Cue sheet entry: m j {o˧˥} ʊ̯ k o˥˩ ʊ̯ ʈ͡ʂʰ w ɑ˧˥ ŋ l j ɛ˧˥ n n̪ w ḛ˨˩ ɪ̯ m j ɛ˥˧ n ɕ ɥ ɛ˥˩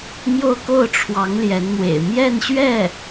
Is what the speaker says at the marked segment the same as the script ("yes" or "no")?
no